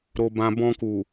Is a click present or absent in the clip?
absent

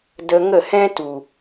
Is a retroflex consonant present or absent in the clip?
absent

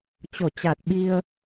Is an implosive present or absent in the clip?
present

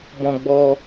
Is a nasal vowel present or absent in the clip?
present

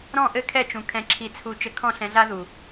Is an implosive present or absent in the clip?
absent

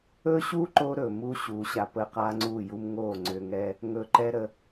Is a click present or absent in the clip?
present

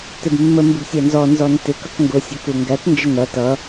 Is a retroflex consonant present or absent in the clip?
absent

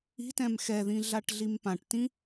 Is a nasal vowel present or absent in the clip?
present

